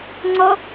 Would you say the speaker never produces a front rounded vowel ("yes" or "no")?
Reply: yes